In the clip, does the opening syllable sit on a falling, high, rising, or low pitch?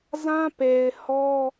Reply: high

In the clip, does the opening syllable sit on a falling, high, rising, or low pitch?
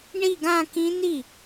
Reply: falling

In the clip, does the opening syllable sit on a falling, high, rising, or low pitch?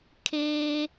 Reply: high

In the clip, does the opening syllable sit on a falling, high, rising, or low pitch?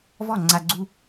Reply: falling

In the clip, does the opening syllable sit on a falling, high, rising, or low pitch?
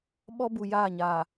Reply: high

